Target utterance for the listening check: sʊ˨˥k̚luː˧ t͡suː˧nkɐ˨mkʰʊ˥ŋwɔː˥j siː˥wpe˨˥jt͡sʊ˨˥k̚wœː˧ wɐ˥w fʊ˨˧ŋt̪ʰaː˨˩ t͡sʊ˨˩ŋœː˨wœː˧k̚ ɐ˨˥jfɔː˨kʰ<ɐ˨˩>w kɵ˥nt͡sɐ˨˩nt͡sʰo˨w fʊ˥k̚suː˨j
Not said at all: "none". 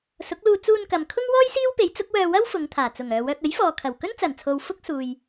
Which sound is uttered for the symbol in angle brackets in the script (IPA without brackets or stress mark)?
ɐ˨˩